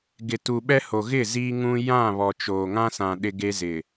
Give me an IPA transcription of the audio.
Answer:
ɡ ɪ˨ t u˨ ɓ ɛ˦ h o˨ ɣ ɪ˦˨ z iː˦ ŋ ũ˦ j ã˦˨ β ɔ˨ t͡ʃ oː˨ ŋ ã˦ s ã˨ ɗ ɪ˦ ɡ e˦ z ɪ˨

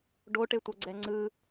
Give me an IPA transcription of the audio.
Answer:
ɖ o ʈ e tʷ ɤ ɡ͡ǀ ɛ ŋ͡ǀ ɯ

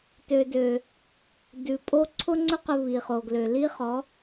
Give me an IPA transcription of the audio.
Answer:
t ø˨ d ø˨ | d ʉ˨ pʼ o˦ ǀʰ ʊ˦ ŋ͡ǀ ʊ˦ q ʊ˧ β i˨ χ o˨ ɡ l ø˨ l i˦ χ ɔ˨˦

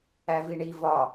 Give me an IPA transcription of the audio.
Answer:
æ v i ɳ i v ɒ

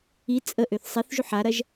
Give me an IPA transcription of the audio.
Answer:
i t͡sʼ ə ʔ ø θ sˤ i θ ʒ u ħ a ɾ ɐ ʒ

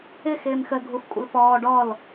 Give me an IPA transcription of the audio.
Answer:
ɪ x ɪː m x ə ɡʱ u f kʷʼ ə̰ l f ɔː ɖ ɔ l

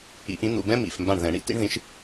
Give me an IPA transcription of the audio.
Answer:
ḭ˨˩˦ ʔ ĩ˨˥ n̪ ṵ˩˧˩ b ɛ̃˦ m ḭ˩˧˩ f m b ã˧˩ ɳ ð ɛ̃˨˩˦ ɳ ḭ˦ t ḭ˦ ɳ ð ĩ˨˥ ʃ

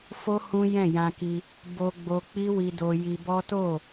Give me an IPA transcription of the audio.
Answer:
f o˦ h ũ˦ j ɛ̃˦˨ j ã˧ k i˧ | b o˧ ɡ͡b o˧ k͡p i˦ w i˧ d o˧ j i˧ b ɔ˦ t o˦˨

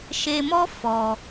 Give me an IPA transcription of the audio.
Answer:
ʃ e˧ m ɔ˦ f ɔ˧

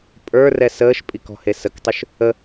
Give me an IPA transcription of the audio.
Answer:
pʼ ə˞ r ɛ s əː ʃ pʼ i k ɔ̤ h e s ə k tˤ ʉ ʃ | ə

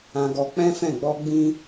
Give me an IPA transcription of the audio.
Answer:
ã˧ ɡ ɔ˧ k͡p ɛ̃˦ f ɛ̃˦˨ ɡ͡b ɔ˧ ɡ͡b ĩ˦

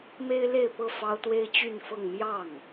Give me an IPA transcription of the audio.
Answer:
m e˥ ɪ̯ l e˥˧ ɪ̯ p ɤ˥˩ f ɑ˥ ʊ̯ t̪ w e˥ ɪ̯ t͡ɕ y˥˧ n f ɤ˥˧ ŋ m j ɑ˥˩ ŋ

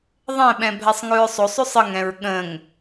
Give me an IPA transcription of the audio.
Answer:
ðˤ ɛ̃ ɓ ɛ̃ bʱ ɛ sˤ ŋ ʉ ɹ sˤ o sˤ ʉ sˤ ə ŋ ɛ̃ ɹ ɠ ə̃ ŋ

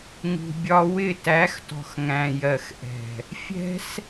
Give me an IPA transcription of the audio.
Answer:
ŋ ṳ˧ bʲ ɒ˦ w ɪ˦˨ t æ˨˦ x t ɔ̤˨ x ŋ æ̃˨ j ɜ˨ x ʔ ɛ̤˨ | fʲ ɛ̤˦ s

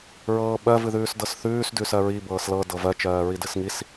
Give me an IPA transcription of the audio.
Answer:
ɹ ɤː ɓ ɜ v ɨ ð ʉː s d ɤ s θ ʉː s d ʉ s ɜ ɹ i b ɤː s l ɤ d ɤ v ɜ t͡ʃ ɜː ɹ i d ɨ s ŋ i s

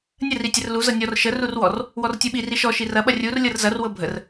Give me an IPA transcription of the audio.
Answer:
nʲ ə r i tʲ ə r l u z ɤ nʲ ɔ r ʃ ə r u r w ɔ r | w ɔ r tʲ u ɓ i r i ʃ ɔ ʃ i r ɐ ɓ ɐ rʲ u r lʲ ɤ r z ɐ r w ɤ bʱ ə r

